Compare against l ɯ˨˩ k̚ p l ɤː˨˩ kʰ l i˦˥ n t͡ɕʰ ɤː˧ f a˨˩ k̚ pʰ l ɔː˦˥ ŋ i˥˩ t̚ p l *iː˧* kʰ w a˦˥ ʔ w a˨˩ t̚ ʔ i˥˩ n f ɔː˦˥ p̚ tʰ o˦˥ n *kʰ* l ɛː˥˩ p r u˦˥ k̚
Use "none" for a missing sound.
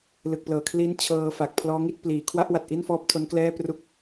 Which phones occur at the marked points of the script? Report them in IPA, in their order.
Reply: iː˩˦, k

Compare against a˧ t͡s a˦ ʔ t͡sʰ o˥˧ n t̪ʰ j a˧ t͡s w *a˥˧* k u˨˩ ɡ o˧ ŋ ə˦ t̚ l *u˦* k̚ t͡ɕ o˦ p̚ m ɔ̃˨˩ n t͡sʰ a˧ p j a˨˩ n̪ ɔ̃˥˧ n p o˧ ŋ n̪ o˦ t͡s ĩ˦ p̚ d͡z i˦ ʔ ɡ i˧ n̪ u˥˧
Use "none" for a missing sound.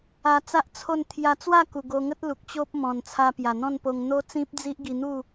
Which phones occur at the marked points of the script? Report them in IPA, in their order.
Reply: a˥˧, u˨

